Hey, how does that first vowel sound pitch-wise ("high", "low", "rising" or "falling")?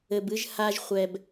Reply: low